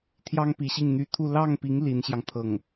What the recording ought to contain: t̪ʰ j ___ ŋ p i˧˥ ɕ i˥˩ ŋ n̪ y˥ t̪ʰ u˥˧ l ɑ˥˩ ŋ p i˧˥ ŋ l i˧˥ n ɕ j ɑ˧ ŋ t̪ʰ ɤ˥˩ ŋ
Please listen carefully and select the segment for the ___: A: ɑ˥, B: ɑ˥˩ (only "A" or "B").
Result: A